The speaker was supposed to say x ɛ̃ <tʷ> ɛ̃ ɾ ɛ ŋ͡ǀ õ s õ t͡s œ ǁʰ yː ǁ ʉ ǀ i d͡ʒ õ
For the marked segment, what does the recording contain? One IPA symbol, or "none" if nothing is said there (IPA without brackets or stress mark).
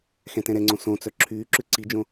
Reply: t